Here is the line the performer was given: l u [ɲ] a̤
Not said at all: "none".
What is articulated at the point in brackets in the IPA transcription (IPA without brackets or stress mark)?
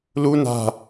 n